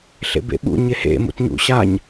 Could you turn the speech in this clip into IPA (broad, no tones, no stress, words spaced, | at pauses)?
ɬḛbḛɓṵ ɲehḛ mṵtɲṵɕaɲ